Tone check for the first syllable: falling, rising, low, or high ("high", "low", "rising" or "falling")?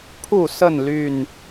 falling